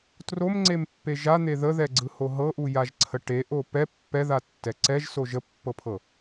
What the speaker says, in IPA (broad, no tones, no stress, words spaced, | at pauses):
tromŋ͡ǀempːe ʒan̪e ðəðɛɡ͡ǀɯho ɦɤʔujaʒǀʰə ʈeʔo pɛ pːɛðatːɛ ǀɛʒso ʒəpːɤpʰɤ